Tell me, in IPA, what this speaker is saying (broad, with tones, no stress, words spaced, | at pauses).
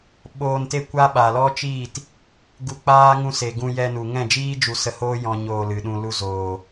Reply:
ɓoː˧nte˦ kʷa˦ ɓa˨lɔ˦t͡ʃiː˦˨t | ɡu˧k͡paː˦ ŋũ˧se˨ɡũ˧ jɛ˧nu˨ ŋɛ̃˦˨d͡ʒiː˦ d͡ʒu˧sə˧hoː˦ jɔ̃˧ ɲoː˧lɨ˨ ɗũ˨lu˧zoː˨